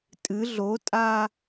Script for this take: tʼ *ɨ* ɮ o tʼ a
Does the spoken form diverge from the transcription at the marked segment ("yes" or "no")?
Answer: no